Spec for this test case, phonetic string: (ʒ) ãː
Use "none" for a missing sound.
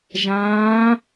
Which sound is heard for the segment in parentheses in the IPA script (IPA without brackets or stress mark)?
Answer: ʒ